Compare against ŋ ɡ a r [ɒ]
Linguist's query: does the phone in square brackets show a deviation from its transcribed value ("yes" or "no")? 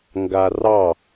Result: yes